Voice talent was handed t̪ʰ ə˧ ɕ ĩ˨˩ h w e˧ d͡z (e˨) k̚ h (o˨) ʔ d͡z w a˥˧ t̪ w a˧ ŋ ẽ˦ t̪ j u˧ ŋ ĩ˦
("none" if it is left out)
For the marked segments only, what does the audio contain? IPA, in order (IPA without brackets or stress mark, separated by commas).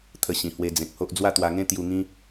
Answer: ẽ˨, o˦